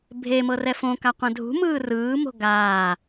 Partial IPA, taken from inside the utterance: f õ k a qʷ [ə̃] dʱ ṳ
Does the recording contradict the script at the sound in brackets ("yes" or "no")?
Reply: yes